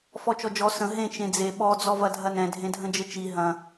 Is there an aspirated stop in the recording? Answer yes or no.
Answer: no